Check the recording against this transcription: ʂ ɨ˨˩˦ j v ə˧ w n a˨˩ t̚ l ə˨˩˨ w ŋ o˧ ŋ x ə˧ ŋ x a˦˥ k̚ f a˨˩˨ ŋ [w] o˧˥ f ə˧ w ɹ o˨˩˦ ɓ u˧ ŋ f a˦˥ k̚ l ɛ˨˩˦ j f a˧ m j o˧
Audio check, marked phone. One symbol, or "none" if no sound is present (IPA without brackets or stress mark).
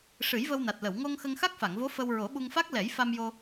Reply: v